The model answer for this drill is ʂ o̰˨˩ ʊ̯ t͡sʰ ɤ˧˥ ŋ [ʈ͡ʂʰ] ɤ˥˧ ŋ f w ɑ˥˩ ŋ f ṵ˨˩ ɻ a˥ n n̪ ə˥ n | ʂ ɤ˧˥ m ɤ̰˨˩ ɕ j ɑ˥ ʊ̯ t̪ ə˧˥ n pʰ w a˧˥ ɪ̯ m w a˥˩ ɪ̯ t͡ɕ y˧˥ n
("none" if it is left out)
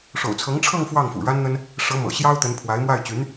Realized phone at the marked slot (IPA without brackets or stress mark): ʈ͡ʂʰ